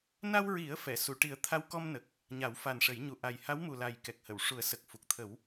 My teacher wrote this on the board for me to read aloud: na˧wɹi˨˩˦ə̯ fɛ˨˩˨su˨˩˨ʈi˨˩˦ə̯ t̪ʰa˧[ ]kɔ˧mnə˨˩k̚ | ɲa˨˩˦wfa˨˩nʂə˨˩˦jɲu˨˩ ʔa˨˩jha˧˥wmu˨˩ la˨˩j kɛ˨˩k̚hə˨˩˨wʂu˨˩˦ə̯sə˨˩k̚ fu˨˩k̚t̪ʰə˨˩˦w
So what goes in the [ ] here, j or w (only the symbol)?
w